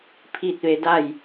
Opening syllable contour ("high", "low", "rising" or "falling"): falling